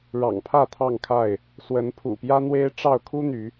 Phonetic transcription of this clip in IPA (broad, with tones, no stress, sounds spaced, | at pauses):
ɻ ɑ̰˨˩ ŋ pʰ ä˥˨ t̪ʰ ɑ˥˨ ŋ kʰ a˥˨ ɪ̯ | s w ə˨˦ n pʰ ṵ˨˩ p j ä˦ n̪ w e˦ ɪ̯ ʈ͡ʂ ɑ˥˨ ʊ̯ kʰ u˦ n̪ y˨˦